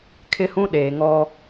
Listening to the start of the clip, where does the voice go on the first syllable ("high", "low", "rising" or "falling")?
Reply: high